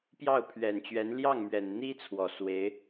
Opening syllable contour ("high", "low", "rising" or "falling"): falling